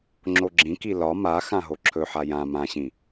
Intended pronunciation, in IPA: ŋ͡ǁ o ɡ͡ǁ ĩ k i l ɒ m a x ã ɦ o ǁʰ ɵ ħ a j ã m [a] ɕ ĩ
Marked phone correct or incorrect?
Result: incorrect: ã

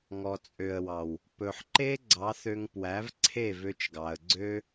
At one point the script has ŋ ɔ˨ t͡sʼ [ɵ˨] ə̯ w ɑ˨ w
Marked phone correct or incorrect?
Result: incorrect: ø˨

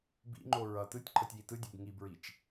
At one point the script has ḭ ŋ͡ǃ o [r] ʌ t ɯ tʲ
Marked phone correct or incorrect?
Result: incorrect: ɹ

